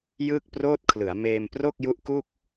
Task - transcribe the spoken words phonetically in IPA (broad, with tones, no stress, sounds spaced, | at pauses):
j ɯː˥˩ k̚ p r oː˥˩ t̚ kʰ l ɯ˩˦ a̯ m eː˧ m p r o˥˩ k̚ j u˦˥ ʔ k u˥˩ k̚